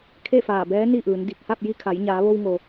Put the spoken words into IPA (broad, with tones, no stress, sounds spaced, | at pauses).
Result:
kʰ e˥˨ f aː˧˩ b ɛː˧˥ n i˥˨ ʔ ɯː˩˧ n d i˧˩ k̚ h a˥˨ p̚ j i˧ kʰ a˩˧ j ɲ aː˩˧ ʋ o˧ w ŋ o˩